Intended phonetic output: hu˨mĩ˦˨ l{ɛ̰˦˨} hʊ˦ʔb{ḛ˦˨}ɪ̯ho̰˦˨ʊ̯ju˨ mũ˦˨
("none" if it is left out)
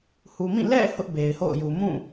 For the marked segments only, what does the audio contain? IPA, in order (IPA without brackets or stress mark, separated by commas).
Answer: ɛ̰˦˨, e˨